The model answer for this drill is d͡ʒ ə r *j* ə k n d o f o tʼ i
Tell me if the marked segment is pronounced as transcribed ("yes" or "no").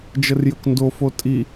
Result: yes